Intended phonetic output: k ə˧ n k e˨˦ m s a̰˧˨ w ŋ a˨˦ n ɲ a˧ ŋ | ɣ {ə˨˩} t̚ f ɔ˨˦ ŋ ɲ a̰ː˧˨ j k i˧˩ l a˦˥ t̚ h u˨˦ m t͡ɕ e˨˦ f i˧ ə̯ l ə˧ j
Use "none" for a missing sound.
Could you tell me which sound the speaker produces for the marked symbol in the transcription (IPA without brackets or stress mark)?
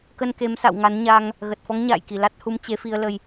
ə˨˩